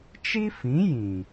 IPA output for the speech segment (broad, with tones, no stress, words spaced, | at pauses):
t͡ʃi˦fĩ˨˦jĩ˨